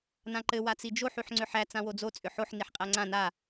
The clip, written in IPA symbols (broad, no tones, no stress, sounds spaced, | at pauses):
n ã ǃ ɘ w a t͡s i d͡ʒ o ħ y ħ ŋ͡ǀ ʏ ħ æ t͡s ã w o d͡z o t͡sʼ ʏ ħ o ħ n i ħ qʼ æ ŋ͡ǀ ã n a